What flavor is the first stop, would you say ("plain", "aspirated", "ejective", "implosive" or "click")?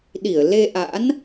implosive